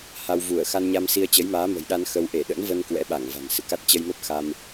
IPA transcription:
h a˧ w v u˧˩ ə̯ x a˧ n ɲ a˧ m s i˧ ə̯ t͡ɕ ə˨˦ j m aː˨˦ m ə̤˨˩ j ɗ a˧ n x ə˧ w ʔ e˧˩ ɗ ə̰˧˥ n v ə˧ n k w ɛ̰˧˥ ɓ a˧˩ ŋ v a̤˨˩ n s ɨ̰˧˨ k a˦˥ t̚ t͡ɕ ə˧ j m ə˦˥ p̚ x a˧ m

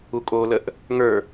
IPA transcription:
u kʼ o l ə ʔ | ŋ ə˞

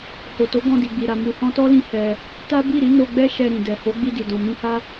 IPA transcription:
h o˨ t o˨˦ ɡ ɔ̃˧ d i˨ ɡ͡b i˨ ɾ a˨ m u˨ h ɔ̃˧ t ɔ˦ l ĩ˧ h ɛ˧ | t a˦ b i˦˨ ɾ i˨˦ n o˧ ɡ͡b ɛ˦ ʃ ɛ˧ ɾ ĩ˨ d ɛ˨ h o˨˦ ɡ͡b i˧ d i˨ d ɔ̃˨ m ĩ˧ h a˦

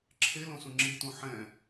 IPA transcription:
ǁʰ e l õ s ũ ŋ͡ǁ i t ũ ħ ɛ̃

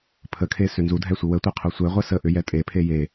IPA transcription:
pʰ ə kʰ e s ʏ n z u dʱ ɛ sʷ i w ə tʷ e qʰ u sʷ ɛ ʁʷ ɛ s ə ʔ ʏ j ɛ tʼ e pʰ e j e

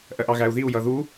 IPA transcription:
ʔ ɜ ʔ ɑ ɣ æ u̯ ð i u̯ j ʌ ð u

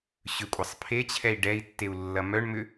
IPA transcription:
ɕ ʏ kʷʼ ɐ sˤ pʰ e t͡ɕʰ ɛ i̯ ɖ ɛ i̯ tː e u̯ lː ɐ m œ ɳ m ʏ

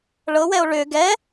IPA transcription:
ɭ ɤ w ɛ o̯ ɭ ʏ ɡ ɛ

